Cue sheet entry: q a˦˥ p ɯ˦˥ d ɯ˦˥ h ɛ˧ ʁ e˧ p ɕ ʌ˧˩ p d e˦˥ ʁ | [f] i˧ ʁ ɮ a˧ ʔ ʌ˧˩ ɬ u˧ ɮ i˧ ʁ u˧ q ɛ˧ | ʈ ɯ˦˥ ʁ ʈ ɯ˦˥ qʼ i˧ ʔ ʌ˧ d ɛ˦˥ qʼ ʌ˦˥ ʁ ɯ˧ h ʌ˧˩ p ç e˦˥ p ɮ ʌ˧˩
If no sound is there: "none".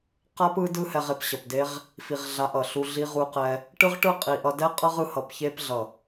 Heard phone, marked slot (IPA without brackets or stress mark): f